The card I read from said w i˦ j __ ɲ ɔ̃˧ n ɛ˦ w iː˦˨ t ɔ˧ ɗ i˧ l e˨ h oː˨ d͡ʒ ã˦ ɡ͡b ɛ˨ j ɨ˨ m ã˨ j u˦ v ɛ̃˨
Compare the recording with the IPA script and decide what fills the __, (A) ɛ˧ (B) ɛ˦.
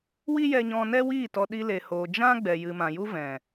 A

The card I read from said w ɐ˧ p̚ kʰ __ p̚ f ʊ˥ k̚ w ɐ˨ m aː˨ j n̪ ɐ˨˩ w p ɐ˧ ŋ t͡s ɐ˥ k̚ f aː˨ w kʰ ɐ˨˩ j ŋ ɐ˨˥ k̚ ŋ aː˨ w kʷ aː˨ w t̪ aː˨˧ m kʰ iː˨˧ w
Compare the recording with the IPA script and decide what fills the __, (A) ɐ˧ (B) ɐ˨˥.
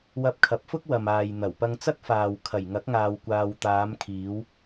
B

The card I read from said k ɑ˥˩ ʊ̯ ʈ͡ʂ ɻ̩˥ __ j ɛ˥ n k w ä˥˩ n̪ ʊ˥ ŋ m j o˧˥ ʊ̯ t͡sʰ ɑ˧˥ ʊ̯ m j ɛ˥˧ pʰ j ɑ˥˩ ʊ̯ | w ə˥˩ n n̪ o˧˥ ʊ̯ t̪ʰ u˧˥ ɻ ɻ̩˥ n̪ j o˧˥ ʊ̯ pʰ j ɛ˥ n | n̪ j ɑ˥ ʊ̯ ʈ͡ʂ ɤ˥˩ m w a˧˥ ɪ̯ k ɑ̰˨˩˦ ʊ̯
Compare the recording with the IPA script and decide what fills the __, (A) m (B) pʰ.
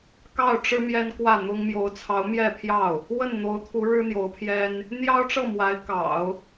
A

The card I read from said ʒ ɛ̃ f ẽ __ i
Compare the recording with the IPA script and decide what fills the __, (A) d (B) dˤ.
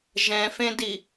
A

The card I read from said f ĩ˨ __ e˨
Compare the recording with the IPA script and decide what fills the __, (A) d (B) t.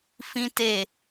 B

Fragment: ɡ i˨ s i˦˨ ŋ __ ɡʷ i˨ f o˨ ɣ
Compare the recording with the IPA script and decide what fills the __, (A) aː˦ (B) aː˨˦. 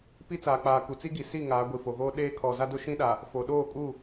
B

